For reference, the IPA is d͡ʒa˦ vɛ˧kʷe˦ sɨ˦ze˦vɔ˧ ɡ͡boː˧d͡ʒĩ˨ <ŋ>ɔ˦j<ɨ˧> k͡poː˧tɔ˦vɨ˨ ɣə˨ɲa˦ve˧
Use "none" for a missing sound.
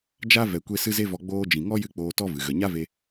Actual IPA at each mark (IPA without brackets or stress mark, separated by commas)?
ŋ, ɨ˧